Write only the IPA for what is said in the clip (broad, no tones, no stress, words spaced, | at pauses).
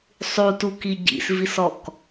sˤutuki ɟḭsvisɔk